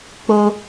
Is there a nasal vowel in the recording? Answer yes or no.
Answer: no